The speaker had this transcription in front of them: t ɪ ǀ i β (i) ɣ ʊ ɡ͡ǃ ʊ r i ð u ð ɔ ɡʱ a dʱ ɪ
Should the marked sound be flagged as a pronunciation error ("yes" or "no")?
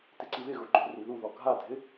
yes